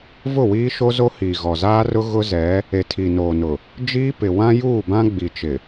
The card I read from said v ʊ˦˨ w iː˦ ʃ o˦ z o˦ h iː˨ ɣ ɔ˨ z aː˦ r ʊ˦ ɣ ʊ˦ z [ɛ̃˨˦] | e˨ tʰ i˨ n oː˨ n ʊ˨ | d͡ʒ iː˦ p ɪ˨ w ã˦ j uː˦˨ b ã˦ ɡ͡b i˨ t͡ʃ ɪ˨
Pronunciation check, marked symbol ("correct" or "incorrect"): incorrect